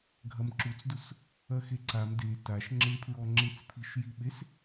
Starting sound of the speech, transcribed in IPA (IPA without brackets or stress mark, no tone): ɡʱ